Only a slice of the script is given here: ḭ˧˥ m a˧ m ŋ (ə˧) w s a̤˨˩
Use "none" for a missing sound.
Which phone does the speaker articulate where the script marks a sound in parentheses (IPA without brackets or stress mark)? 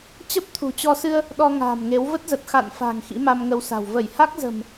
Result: ə˧